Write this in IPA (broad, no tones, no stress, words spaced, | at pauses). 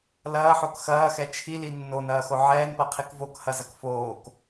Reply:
lɐːħok xɐːxɛ t͡ʃʰili nːonɐːxo ʕɛːnpɐqʰik vokhɐzɐk foːk